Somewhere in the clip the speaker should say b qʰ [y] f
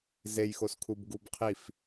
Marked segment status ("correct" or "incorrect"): incorrect